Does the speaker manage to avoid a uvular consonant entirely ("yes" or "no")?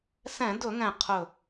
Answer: no